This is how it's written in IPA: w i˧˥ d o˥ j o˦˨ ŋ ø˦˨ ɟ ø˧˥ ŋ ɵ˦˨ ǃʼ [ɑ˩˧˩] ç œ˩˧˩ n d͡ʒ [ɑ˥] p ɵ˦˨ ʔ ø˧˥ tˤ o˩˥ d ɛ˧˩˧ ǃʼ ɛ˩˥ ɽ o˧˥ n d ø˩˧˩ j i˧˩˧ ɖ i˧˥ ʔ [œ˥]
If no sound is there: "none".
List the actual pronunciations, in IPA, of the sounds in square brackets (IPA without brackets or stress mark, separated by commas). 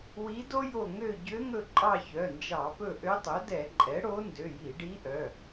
ɑ˦˨, ɑ˧˩˧, œ˩˧˩